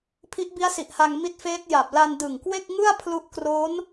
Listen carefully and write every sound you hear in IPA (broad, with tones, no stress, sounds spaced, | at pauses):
pʰ i˦˥ ʔ b i˦˥ a̯ s i˨˩ ʔ h a˧ ŋ m i˦˥ t̚ f eː˦˥ t̚ j a˨˩ p̚ l a˧ n d ɯ˨˩ ŋ k w e˥˩ k̚ ŋ ɯ˥˩ a̯ pʰ l u˦˥ ʔ k r o˦˥ n